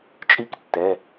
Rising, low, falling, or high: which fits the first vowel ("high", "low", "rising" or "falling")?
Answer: falling